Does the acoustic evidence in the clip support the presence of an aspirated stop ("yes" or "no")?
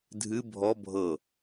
no